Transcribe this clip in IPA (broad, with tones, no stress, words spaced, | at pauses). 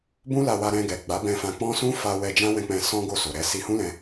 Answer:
bũ˦la˧wa˧ɾɛ̃˧ ɡɛ˨ɡ͡ba˨˦bɛ̃˧ fã˧k͡pɔ̃˦ sũ˦fa˧wɛ˧ d͡ʒã˦wɛ̃˧k͡pɛ̃˧ sɔ̃˦ ɡo˦˨so˨ɾɛ˨˦ si˧hũ˦lɛ̃˧